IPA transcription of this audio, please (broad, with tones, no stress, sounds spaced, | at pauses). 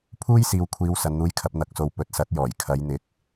pʰ uː˥ j s iː˨ w kʷʰ iː˨˧ w s ɐ˨ n n̪ uː˧ j kʰ ɐ˧ p̚ n̪ ɐ˨ k̚ s o˨ w p ɵ˨ t̚ s ɐ˨˥ t̚ j ɔː˨˩ j kʰ ɐ˨˧ j n̪ ɪ˨˥ k̚